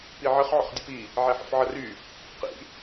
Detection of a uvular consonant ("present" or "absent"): present